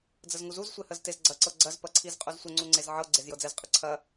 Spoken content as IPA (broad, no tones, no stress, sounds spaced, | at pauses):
d͡z ə z ŋ u z u z sʷ e h ə z t e z ɡ͡ǀ ɐ ǀ ɤ ɡ͡ǀ ɐ z p ɐ ǀʰ i z qʼ u z sʷ ə ŋ͡ǀ u ŋ͡ǀ e z ʕ ɤ ɡ͡ǀ e z j ɤ d͡z ɛ z qʼ ə ǀʰ ɐ